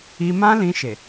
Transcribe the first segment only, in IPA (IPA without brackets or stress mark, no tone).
i